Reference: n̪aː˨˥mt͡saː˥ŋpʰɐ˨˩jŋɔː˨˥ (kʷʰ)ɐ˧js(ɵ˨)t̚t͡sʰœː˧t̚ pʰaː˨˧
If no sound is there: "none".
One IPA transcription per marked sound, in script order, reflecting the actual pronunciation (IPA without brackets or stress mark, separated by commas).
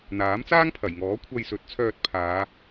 kʷʰ, ɵ˨˥